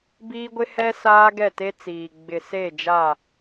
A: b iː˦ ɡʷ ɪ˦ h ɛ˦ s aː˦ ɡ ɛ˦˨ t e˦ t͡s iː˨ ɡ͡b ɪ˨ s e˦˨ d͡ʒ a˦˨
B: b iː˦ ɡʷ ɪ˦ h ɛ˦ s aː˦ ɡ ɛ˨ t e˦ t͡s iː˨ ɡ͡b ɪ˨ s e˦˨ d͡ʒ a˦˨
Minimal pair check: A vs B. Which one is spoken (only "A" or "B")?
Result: A